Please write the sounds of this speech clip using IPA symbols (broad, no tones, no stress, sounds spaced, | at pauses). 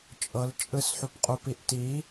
t͡ʃʼ ɤ l t͡ʃʼ ɯ s ħ u p qʼ u p i ʔ t i